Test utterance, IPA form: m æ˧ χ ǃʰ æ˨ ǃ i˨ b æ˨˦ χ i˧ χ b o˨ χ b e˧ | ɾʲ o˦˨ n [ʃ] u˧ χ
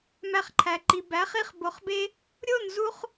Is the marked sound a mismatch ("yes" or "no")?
yes